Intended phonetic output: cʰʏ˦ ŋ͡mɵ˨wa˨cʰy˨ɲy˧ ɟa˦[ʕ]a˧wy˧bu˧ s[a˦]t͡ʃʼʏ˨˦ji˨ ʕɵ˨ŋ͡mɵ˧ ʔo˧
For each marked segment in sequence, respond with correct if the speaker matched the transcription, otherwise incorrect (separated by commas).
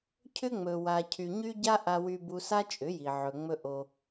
incorrect, correct